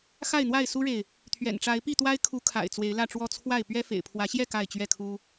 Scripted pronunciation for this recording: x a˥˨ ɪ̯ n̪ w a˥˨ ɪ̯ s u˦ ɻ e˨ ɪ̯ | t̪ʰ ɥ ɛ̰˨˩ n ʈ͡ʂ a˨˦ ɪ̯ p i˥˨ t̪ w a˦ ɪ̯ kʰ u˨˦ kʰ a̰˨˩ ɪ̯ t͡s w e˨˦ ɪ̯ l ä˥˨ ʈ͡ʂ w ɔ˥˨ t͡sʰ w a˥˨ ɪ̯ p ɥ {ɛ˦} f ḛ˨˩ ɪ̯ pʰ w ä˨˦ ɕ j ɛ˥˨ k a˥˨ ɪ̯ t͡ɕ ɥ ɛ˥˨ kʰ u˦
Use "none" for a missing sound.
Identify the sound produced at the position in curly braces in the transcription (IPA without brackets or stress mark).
ɛ˦